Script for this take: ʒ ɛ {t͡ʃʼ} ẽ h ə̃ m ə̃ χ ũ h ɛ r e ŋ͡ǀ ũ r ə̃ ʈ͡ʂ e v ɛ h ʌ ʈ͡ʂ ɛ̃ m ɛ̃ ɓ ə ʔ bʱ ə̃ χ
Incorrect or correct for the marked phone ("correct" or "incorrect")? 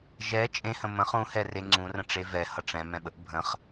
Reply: correct